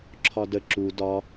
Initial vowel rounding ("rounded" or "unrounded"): rounded